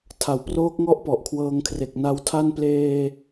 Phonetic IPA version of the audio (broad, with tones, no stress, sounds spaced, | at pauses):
tʰ a˨˩ w p r oː˦˥ k̚ ŋ ɔ˦˥ ʔ p ɔ˨˩ ʔ kʰ w ɤː˧ ŋ kʰ r e˨˩ k̚ n a˦˥ w tʰ a˥˩ n p l eː˧